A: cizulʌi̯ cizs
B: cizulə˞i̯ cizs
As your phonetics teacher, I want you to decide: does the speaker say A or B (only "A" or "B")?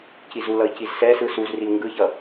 A